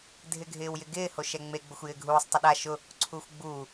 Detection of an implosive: present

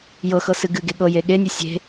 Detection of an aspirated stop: absent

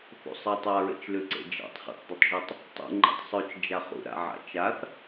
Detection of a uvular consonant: present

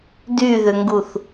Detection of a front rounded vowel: present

